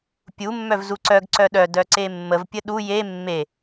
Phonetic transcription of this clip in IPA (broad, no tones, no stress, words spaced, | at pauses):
pʲu mːœvzuǀœɡ ǀœɗœ dœǀemːəv pʲəɗu je mːe